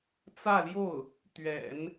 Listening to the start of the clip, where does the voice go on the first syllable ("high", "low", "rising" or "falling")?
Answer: falling